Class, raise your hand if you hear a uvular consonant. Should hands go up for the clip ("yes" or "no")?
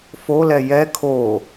no